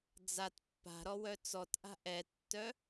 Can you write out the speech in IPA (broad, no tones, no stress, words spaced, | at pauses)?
d͡zat pːa̤ɾɔwœ t͡sɔtʔa̤ ʔɛtːœ